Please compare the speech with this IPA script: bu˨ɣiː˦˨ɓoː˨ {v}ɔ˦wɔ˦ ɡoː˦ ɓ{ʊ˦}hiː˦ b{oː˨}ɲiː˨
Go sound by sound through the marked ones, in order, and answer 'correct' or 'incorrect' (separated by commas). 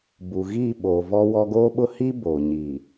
correct, correct, correct